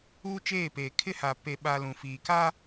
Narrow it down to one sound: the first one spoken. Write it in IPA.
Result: uː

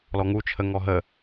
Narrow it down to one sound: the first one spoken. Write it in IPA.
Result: l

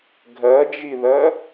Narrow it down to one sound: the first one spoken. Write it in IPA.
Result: ɡʱ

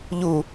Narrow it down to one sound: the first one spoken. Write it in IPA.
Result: ʎ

